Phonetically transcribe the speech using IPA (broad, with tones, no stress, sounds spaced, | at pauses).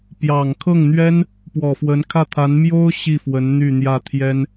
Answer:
p j ɑ˨˩ ŋ kʰ ɤ˥˩ ŋ n̪ ɥ ɛ˥ n | p w ɔ˨˩ f w ə˧˥ n kʰ ä˥˩ t̪ʰ a˧˥ n m j o˥ ʊ̯ ɕ i˥˩ f w ə˧˥ n n̪ y˥˧ n̪ j ä˥˩ t̪ʰ j ɛ˥ n